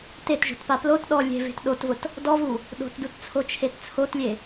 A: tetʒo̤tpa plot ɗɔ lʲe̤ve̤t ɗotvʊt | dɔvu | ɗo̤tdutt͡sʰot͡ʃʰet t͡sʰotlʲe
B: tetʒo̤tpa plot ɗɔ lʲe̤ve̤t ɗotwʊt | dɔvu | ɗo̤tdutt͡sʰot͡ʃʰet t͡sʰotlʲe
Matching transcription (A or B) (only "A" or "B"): A